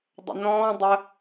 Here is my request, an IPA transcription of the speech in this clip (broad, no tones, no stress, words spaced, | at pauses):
dˤə̰nɔ̃ː dˤə